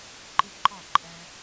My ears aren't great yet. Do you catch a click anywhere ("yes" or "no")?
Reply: yes